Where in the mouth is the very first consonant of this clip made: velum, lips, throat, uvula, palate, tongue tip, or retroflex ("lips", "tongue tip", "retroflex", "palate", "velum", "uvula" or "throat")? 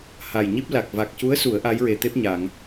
throat